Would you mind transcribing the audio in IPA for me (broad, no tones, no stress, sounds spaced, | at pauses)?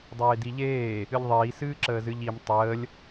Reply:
dˤ eː d i ʎ eː | ɨ ʎ ðˤ iː s ɨː ǁ əː z ɨ ʎ i m tˤ əː lʲ